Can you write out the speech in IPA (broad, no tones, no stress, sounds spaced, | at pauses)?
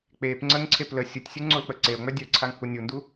k͡p e p ŋ͡ǀ ə ŋ ǀʰ e p l ə sʲ u tʲ sʲ u ŋ͡ǀ o l k͡p ə ǀ e o̯ ŋ͡m œ dʲ œ ǀʰ a ŋ h u nʲ u n d u